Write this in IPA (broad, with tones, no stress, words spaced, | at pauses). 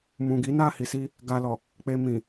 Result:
mũ˨ ɡi˨˦na˦˨hi˨si˧ | ɡa˧lɔ˨ | k͡pe˧mĩ˨